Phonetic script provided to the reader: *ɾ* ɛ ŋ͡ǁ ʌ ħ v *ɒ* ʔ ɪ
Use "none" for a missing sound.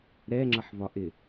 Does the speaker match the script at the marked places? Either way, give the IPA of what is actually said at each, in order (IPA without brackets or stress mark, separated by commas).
ɾ, ɒ